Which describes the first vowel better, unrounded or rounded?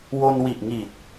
rounded